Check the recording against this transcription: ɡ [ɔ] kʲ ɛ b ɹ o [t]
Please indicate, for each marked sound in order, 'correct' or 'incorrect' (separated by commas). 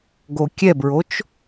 incorrect, incorrect